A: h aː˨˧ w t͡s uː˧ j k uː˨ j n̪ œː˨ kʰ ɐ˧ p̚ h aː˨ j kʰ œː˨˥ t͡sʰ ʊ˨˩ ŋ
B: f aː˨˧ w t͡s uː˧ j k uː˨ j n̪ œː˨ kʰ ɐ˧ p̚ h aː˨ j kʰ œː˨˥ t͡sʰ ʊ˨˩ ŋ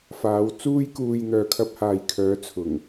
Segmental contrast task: B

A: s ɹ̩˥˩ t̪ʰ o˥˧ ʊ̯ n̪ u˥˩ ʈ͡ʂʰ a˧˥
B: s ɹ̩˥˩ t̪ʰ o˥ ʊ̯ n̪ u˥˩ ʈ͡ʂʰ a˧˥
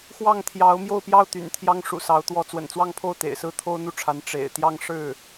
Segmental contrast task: B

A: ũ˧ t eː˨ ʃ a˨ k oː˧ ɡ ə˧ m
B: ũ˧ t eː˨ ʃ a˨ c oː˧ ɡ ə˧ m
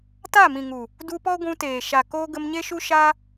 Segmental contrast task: A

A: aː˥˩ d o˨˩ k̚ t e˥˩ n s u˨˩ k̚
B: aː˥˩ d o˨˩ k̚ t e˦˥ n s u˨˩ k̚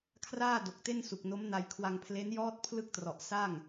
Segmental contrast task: A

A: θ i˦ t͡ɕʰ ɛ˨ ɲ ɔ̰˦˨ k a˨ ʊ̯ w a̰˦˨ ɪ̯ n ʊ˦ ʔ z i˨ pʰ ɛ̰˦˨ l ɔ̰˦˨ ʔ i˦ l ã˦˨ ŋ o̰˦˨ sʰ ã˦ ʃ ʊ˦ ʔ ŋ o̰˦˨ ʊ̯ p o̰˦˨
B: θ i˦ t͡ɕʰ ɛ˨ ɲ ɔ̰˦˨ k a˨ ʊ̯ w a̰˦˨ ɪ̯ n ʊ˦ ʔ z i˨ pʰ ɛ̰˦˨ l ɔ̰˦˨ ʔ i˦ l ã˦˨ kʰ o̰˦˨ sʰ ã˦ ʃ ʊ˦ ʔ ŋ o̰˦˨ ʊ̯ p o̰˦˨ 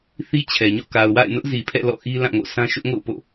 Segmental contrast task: A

